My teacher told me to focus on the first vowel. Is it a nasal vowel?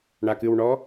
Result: no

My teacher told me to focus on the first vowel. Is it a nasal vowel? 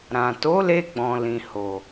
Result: yes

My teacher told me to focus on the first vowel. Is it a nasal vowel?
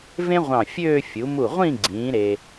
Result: yes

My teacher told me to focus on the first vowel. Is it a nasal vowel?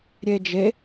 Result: no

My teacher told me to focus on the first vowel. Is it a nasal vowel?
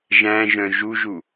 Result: yes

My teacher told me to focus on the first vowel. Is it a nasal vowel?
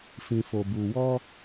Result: yes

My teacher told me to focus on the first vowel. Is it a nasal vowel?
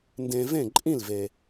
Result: yes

